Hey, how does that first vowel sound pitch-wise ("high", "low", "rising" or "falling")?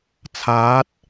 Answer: rising